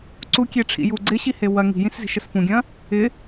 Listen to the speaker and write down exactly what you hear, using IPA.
ǀ u kʲ e ʈ͡ʂʰ ḭ j u ɡ͡ǀ ɪ ɕ i h e w ɐ ŋ i̤ j ĩ s z i̤ ʃ ə s f ũ ɡʲ ɐ̃ | ɪ

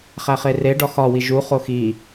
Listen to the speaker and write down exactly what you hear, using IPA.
χ æ χ e r e ɖ ɒ x ɒ w i ʒ u χ o x i

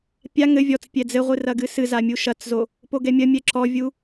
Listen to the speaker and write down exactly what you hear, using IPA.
pʲ a ŋ ɘ vʲ ɔ t͡s pʲ ɛ d͡z ɘ ʁʷ ɨ r ɐ ɡ ɨ s ɨ z a mʲ u ʃ ɐ t͡s z o | p o ɡ ɛ mʲ ɐ mʲ ɛ ǁ ɔ vʲ u

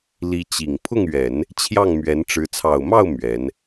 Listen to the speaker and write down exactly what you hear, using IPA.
l i˧˥ t͡ɕ i˨˩ ŋ pʰ ʊ˥˩ ŋ ɥ ɛ˨˩˦ n | t͡ɕʰ j ɑ˥˩ ŋ m ɥ ɛ˧˥ n ʈ͡ʂ ɻ̩˧˥ t͡sʰ ɑ˨˩ ʊ̯ m ɑ˥˩ ʊ̯ m ɥ ɛ˧˥ n

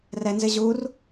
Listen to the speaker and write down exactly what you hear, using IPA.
r ɛ n z ɪ ʑ u r

